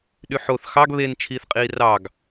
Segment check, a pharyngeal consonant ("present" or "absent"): present